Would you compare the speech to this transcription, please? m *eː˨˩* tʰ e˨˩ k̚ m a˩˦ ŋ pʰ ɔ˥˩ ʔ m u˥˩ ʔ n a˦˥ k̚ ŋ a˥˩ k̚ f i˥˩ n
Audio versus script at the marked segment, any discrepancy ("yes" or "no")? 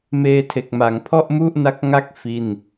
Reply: yes